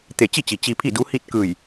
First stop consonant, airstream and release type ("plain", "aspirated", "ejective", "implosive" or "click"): plain